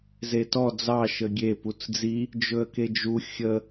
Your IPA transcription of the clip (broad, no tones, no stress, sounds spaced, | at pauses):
z e t ɔ d͡z ɑ ʃ ə ɡʲ e p u t͡s d͡z i | d͡ʒ ɵ ə̯ k e d͡ʒ u xʲ ə